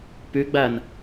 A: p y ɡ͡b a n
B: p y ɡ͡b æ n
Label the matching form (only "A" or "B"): B